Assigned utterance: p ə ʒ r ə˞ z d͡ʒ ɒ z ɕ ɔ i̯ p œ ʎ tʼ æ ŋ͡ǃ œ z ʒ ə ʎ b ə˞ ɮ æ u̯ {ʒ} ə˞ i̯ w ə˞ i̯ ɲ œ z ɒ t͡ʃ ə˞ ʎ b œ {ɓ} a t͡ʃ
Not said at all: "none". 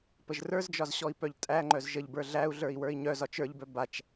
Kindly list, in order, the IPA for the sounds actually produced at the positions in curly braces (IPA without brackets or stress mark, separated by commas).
ɮ, b